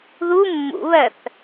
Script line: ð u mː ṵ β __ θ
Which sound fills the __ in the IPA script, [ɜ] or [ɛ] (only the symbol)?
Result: ɜ